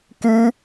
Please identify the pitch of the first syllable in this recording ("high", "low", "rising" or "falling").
high